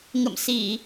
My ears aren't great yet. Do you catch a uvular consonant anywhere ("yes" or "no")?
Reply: no